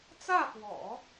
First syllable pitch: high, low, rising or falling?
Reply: falling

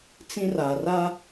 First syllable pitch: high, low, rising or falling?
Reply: high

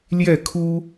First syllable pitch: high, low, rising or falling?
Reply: falling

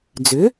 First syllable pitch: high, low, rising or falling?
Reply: rising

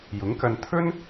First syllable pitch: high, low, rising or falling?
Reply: rising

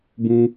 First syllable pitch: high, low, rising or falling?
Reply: high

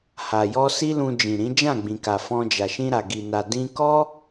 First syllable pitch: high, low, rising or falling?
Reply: low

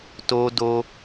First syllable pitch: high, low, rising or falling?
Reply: high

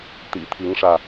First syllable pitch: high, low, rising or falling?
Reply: low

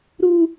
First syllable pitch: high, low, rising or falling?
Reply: high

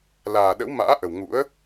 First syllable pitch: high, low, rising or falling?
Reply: low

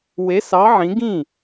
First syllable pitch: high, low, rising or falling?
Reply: rising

